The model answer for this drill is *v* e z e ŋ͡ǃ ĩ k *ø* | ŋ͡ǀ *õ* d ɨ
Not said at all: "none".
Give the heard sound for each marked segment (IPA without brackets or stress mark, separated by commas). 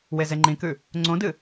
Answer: w, ʉ, õ